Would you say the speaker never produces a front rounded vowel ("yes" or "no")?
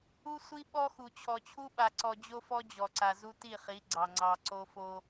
yes